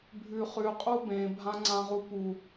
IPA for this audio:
bʱ ʉ χ ʉ qʼ u b ẽ bʱ ã ŋ͡ǀ ã ʁ u p u

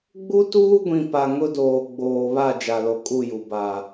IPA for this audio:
ɡ͡b u˦ t uː˦ ɡʷ ĩ˨ p a˨ ŋ ʊ˦ d oː˨ ɡ͡b oː˨ β a˦˨ d͡ʒ a˨ l o˨ kʼ u˦˨ j u˨ b a˨

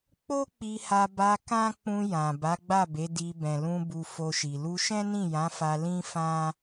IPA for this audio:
k͡p o˦ k͡p i˧ h a˧ b a˧ k ã˦ k͡p ũ˧ j ã˨ b a˨˦ ɡ͡b a˦˨ b e˨˦ d i˧ b ɛ̃˨ l ũ˧ b u˧ f o˧ ʃ i˨ l u˧ ʃ ɛ̃˦ n ĩ˦˨ j ã˨˦ f a˧ l ĩ˦ f ã˦

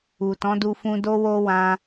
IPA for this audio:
u˨ t ɔ̃˨˦ d u˧ f ũ˧ d o˦ w o˦ w ã˧

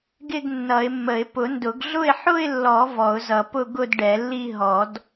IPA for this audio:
ɡ ɪ˥˧ ɡ nː ʌ˨˩˦ ɪ̯ mː ə˨˩˦ ɪ̯ p ʊ˨˩˦ n d ʊ˨˩˦ ɡ ɮ ʊ˥˧ ɪ̯ ħ ʊ˥˧ ɪ̯ lː ɔ˨˩˦ v ɔ˨˩˦ ʊ̯ z ʌ˨˩˦ p ʊ˥˧ ɡ ʊ˥˧ d ɖ ɛ˨˩˦ lː i˥˧ ɦ ɔ˨˩˦ d

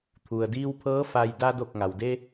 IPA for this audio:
t̪ʰ u˩ ə̯ d iː˧ w pʰ ɤː˧˥ f a˧ j d a˧ d o˧˩ k̚ ŋ a˩ w d e˧

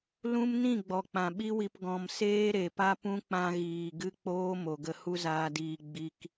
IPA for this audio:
l ũ˦ m n ĩ˦˨ ɡ͡b ɔ˨ k͡p ã˨ ɓ i˦ w i˧ p ɡ ɔ̃˧ m s eː˦ ɾ e˨ p a˦ p ũ˦ k͡p ã˧ ɣ iː˨ ɡ ɨ˦ k͡p oː˦ m o˨ ɡ ə˧ h u˦ z aː˧ d iː˧ ɡ͡b i˦ k

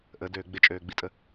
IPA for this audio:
ʔ ə d øː ɡ͡b ɪ t͡ʃʼ øː ɡ͡b i tʼ ə

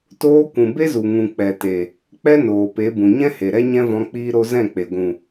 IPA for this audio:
t oː˧ kʷ ũ˨ b e˦ z u˨ ŋ ũ˨ k͡p ɛ˨ t e˨ | k͡p ɛ˦ n oː˨ p e˨˦ b ũ˨ ɲ ɛ̃˦ h e˨ ɾ ɛ˦ ɲ ɛ̃˦ v ɔ̃˧ k͡p iː˧ ɾ o˧ z ɛ̃˦˨ k͡p e˨ ɡʷ ũ˨

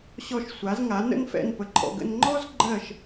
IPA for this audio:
ɕ ɔ˧˩ ʃ sʷ a˩˧ z ŋ a˩˧ n ə̰˧ n f ɛ̰˧˩ n p ə˩˧ ǃʰ ɔ̰˧˩ ɡ ə̰˧ n ŋ͡ǃ ɔ˥ z ɡ͡ǃ ɜ˧˩ ʃ

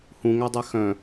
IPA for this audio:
h ũ ŋ æ dˤ ɛ x œ̃

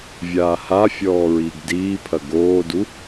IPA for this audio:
vʲ aː h a fʲ ɔː ɹ iː ɡ d iː pʰ ɐ ɡ oː d u

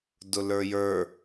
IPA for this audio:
d ʊ l ə˞ j ə˞

